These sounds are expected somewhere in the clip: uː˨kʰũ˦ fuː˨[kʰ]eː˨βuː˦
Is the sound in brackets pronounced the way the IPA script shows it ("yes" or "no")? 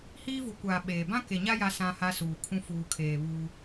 yes